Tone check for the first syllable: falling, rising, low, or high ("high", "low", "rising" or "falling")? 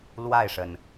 falling